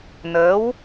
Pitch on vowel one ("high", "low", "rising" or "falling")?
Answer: rising